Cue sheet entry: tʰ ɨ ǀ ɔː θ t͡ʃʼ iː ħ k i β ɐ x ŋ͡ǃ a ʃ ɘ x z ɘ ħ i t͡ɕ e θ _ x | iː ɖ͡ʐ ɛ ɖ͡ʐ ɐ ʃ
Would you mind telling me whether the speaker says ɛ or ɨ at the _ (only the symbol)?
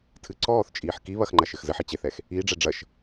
ɛ